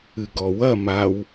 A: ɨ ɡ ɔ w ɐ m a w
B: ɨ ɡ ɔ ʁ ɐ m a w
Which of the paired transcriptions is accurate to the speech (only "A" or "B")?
A